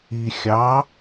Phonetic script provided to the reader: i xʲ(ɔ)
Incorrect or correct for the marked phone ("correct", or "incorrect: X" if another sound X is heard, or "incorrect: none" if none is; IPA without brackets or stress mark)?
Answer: incorrect: ɑ